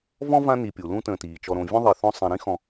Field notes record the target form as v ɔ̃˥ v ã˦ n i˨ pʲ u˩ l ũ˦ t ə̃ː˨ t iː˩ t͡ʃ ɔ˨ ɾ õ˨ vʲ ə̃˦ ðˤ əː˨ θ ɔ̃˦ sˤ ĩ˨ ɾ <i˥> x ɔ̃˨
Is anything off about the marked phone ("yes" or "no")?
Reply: yes